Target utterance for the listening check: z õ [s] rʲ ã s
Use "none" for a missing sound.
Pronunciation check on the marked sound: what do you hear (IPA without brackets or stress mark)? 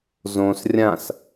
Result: s